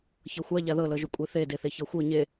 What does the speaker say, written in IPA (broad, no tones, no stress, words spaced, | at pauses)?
çɤxʷa ʎaðɤ lɤʒukʷʼeθe deθeçɤxʷɤ ɲe